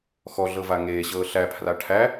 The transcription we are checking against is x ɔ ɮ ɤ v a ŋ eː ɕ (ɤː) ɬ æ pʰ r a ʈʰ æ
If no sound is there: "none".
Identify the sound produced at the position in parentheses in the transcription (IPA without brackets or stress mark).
ɤː